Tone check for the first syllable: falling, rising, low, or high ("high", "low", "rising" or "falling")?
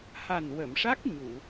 low